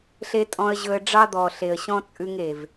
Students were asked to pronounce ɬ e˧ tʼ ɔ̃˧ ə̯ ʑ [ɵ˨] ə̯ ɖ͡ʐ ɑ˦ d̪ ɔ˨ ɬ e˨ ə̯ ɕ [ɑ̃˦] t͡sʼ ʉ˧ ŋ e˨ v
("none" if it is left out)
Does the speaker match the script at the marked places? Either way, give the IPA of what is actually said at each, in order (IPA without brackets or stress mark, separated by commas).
ɵ˧, ɔ̃˦